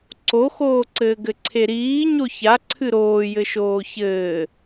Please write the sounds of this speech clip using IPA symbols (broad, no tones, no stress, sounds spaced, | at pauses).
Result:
ǀ o x oː ǀ ɘː ɡ ɘ ǀʰ e ɾ iː ɲ o ç a ǀʰ ɨ ɾ oː j ɘ ʃ oː ç ɘː